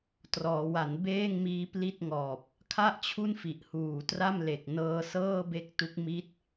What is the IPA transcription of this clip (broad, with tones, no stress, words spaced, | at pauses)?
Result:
trɔː˩˦wa˩˦nbeː˥˩ŋmiː˦˥ pli˥˩t̚ŋɔː˨˩p̚ | kʰa˥˩ʔt͡ɕʰu˥˩nfi˨˩ʔ huː˨˩tra˥˩mle˨˩k̚ nɤː˧sɤː˥˩be˦˥k̚ tu˦˥k̚mi˦˥t̚